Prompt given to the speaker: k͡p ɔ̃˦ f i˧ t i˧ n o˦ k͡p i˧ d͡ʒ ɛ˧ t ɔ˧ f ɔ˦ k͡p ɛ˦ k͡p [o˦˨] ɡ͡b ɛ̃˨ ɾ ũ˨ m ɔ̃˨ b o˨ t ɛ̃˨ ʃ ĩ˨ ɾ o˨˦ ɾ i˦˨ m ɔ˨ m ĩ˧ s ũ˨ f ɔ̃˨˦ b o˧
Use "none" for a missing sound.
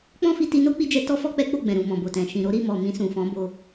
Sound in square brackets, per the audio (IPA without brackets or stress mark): o˦˨